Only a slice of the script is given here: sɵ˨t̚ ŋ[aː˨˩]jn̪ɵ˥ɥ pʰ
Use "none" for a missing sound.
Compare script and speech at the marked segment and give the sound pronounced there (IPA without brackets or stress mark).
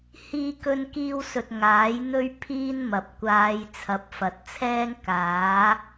aː˨˥